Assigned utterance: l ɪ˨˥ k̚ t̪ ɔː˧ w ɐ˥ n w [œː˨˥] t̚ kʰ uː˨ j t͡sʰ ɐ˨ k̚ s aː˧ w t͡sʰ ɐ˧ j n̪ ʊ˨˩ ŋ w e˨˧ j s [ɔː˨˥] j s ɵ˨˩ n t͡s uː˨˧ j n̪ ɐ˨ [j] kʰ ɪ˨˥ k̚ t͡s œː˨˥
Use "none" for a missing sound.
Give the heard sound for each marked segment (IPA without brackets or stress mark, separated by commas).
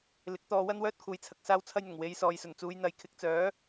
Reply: œː˥, ɔː˨, j